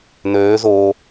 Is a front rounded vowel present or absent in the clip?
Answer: present